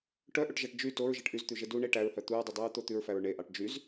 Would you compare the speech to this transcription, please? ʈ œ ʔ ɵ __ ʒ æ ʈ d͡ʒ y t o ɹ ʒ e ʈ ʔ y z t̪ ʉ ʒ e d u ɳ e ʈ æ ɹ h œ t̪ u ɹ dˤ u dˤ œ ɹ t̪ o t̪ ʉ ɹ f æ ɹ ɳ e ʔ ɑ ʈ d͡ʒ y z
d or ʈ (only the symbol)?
ʈ